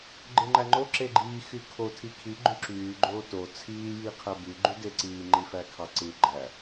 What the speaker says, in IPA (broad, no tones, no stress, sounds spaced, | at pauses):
ɡ͡ǃ ɯ ŋ͡ǃ æ ŋ͡ǃ o ǁ e ɡ͡ǃ iː x y kʰ o tʰ i kʰ i ɡ͡ǃ y ǁ yː ɡ͡ǃ oː t o t͡sʰ iː j iː qʰ æ b y ɡ͡ǃ y d e ǀ iː ŋ͡ǃ i f æ kʰ ɑ ǀ ɯ ɡ͡ǃ æ